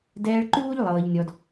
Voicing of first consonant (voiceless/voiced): voiced